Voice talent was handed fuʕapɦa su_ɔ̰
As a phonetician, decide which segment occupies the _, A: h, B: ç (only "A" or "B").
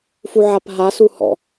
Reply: A